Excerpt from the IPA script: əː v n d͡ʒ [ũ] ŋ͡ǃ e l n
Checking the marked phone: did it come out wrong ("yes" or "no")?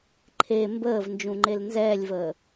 no